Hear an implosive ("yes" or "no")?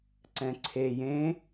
no